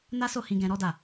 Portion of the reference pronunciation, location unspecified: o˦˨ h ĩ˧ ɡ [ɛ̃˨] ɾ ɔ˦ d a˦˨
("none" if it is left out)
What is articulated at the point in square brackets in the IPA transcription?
ɛ̃˧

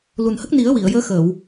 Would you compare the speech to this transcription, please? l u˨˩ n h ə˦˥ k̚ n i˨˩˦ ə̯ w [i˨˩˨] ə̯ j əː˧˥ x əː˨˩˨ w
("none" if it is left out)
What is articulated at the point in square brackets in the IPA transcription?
i˨˩˨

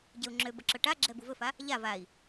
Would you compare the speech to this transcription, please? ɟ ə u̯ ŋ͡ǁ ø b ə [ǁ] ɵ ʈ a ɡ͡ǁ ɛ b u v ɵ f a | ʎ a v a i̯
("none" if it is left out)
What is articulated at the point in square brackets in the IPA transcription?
ǁ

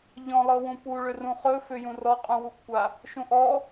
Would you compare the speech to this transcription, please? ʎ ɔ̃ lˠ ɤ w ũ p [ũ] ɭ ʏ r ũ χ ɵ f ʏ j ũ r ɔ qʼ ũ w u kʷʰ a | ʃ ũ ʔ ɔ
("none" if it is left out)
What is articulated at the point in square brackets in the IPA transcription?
u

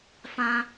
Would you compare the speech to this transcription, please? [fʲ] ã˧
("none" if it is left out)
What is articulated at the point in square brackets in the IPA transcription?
f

